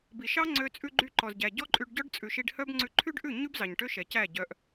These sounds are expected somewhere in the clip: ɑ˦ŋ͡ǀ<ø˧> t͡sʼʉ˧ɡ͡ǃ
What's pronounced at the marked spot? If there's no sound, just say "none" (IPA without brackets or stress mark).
ø˧